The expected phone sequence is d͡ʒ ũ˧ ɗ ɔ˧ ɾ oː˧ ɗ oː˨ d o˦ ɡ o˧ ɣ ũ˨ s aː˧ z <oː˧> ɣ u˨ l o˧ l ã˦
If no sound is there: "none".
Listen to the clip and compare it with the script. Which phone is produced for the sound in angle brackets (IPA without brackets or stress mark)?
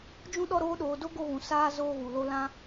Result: oː˧